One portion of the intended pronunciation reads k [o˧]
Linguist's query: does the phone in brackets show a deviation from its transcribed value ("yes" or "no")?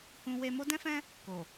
yes